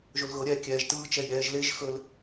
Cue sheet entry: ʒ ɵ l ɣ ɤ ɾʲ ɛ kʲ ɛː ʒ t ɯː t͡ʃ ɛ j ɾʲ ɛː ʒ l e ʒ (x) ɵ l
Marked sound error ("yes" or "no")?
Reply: no